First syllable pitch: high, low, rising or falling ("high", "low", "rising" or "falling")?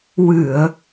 low